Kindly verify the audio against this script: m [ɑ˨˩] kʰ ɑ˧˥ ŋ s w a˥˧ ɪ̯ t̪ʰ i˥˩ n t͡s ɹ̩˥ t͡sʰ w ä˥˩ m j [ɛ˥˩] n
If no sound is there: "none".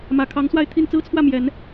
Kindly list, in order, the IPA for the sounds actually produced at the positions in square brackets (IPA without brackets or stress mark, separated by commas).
ä˨˩, ɛ˨˩˦